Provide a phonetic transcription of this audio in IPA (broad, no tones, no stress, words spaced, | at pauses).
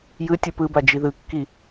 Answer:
jɯ tʲɯpɯba d͡ʒiðɯkːi